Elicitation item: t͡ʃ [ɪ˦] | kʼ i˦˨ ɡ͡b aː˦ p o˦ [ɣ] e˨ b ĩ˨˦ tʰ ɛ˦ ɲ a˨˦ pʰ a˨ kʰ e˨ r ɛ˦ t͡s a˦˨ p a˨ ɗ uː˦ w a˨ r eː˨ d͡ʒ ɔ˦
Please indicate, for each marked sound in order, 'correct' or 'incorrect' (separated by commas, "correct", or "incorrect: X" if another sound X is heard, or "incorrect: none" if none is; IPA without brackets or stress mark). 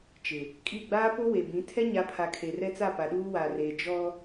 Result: incorrect: ɪ˨, incorrect: w